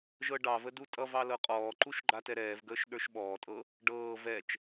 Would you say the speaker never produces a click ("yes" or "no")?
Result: no